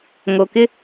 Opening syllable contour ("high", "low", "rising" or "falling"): low